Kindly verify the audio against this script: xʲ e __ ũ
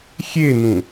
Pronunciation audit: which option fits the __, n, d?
n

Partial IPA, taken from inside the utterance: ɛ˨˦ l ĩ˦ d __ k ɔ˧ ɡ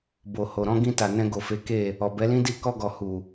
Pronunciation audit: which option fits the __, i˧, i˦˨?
i˦˨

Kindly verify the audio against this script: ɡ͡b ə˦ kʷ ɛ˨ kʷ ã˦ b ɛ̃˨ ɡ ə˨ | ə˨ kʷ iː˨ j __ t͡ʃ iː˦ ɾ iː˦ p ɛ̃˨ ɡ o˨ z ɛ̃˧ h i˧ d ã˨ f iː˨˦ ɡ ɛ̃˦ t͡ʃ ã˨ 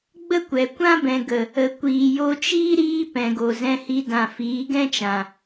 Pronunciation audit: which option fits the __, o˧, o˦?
o˧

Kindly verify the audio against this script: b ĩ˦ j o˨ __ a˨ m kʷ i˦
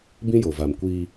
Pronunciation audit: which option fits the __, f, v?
v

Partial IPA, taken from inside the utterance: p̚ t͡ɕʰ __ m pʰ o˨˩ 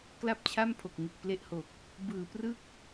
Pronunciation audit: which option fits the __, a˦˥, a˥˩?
a˥˩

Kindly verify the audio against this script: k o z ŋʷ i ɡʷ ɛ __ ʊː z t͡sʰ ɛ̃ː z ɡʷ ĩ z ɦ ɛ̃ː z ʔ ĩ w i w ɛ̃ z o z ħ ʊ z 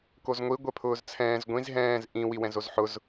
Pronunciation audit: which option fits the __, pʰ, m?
pʰ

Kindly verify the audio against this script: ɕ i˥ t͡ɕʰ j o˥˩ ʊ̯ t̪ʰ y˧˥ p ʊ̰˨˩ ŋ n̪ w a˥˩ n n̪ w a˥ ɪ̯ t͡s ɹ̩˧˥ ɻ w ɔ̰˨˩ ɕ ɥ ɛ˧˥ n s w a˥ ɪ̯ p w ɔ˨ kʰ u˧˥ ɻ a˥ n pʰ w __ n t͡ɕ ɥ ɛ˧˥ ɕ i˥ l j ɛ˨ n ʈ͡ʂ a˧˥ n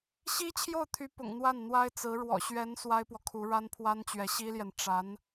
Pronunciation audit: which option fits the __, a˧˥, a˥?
a˥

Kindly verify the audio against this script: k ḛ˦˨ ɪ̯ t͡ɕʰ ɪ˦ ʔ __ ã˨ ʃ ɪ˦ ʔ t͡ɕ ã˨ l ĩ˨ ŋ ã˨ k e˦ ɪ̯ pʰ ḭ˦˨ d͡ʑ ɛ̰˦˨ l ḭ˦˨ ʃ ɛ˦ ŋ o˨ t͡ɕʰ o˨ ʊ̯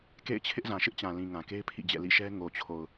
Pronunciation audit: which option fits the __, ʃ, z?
z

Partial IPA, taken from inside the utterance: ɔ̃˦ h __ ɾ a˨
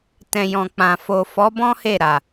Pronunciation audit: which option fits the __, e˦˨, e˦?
e˦˨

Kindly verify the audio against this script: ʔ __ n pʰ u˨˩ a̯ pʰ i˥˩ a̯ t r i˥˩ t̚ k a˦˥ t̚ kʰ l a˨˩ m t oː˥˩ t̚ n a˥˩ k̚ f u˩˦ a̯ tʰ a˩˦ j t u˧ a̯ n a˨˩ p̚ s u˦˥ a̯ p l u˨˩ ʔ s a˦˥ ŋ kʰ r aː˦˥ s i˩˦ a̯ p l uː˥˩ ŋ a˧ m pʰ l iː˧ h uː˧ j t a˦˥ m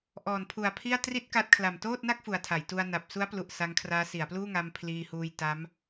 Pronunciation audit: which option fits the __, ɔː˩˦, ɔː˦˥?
ɔː˩˦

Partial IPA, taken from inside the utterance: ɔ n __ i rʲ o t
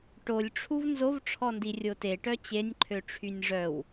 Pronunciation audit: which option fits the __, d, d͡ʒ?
d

